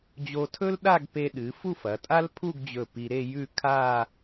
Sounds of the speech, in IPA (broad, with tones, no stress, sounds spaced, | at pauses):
d͡ʑ o˧ tʰ ɵ˥ l ɗ a˥˧ ɡ p e˧ ɗ ɨ˩˧ f u˥˧ f ɐ˩˧ tʼ a˥ l pʰ u˥˧ ɡ d͡ʑ ɵ˧˩ p i˧ ɾ e˥˧ j ʉ˥˧ kʰ a˥˧